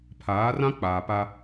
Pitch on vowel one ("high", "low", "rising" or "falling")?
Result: rising